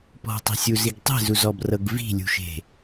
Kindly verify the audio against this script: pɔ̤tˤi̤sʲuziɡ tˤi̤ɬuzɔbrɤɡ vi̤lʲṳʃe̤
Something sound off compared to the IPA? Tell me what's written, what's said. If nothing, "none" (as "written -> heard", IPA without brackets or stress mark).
ɬ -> z